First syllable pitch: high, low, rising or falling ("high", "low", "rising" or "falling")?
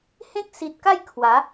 high